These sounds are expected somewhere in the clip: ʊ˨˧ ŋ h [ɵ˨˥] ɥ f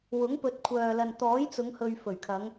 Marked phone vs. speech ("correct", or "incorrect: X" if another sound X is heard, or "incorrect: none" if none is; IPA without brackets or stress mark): incorrect: ɵ˨